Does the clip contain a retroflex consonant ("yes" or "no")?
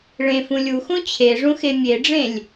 yes